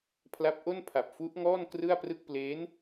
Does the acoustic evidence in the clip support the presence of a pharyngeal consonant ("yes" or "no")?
no